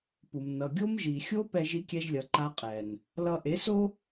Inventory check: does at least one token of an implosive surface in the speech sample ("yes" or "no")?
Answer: no